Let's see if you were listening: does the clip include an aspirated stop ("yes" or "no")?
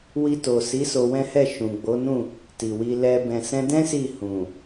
no